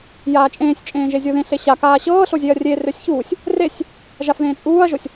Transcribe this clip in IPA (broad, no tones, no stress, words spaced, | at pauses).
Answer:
jaːt͡ʃʼẽːsʲt͡ʃʼẽː ʒezʲoðẽ ɬeɕakaː ɕɤːɬozʲeɐ̯ rʲe røsʲçuːsʲ | resʲ | ʒafðẽːt͡sʼuːɐ̯ʒosʲ